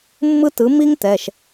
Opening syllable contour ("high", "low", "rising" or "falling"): high